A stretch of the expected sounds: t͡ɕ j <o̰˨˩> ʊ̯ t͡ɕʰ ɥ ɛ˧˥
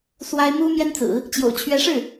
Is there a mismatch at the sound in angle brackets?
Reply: no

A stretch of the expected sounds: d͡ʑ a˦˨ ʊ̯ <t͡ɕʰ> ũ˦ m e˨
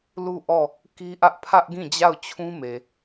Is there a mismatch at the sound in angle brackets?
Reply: no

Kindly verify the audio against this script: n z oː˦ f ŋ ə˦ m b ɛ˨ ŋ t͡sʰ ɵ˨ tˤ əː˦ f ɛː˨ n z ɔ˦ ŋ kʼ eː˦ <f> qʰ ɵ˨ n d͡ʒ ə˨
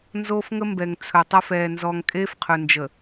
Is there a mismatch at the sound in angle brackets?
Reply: no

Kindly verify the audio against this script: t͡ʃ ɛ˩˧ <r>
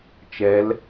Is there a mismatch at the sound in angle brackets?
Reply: yes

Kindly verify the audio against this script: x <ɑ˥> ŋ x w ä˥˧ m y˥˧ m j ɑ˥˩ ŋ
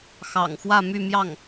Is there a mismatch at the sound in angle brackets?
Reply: yes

